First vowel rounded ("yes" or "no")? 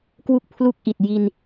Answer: yes